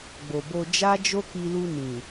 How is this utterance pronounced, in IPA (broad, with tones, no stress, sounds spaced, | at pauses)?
ɡ͡b o˨ b o˧ d͡ʒ a˦ d͡ʒ o˦ k i˧ l u˧ n ĩ˨